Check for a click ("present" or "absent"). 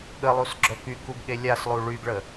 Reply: present